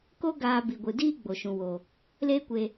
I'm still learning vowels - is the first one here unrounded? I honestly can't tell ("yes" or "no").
no